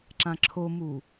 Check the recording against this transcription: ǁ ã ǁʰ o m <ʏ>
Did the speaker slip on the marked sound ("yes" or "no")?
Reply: yes